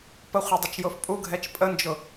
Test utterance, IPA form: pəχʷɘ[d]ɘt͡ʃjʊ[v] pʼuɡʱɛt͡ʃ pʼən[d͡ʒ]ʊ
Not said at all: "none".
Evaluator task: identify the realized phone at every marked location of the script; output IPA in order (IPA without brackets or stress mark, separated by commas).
dˤ, f, d͡ʒ